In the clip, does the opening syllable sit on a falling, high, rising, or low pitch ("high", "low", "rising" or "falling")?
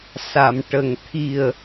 low